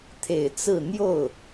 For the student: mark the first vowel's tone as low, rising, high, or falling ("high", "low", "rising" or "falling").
low